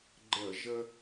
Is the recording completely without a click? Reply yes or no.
no